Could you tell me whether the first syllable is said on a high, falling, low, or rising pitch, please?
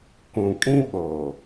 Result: low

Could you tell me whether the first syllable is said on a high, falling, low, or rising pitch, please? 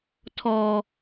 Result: low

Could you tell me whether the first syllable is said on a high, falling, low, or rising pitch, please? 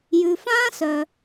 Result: low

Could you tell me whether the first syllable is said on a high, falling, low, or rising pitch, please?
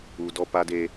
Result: high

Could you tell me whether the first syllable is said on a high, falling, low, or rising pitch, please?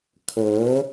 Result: rising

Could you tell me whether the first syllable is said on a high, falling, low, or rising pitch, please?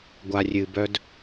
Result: low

